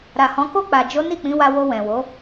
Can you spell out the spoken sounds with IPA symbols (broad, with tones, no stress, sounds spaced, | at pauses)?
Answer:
ɾ a˨ h ɔ̃˨˦ k o˦˨ k͡p a˨ d͡ʒ o˨˦ n i˦˨ k͡p ĩ˨˦ w a˧ w o˧ w ɛ̃˨ w o˨˦